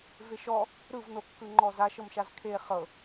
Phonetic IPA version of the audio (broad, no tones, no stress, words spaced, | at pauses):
veʃɔ | ɾɯvnokːɯ ŋ͡ǃɔzaʃɤmʃaz kʰe χɤ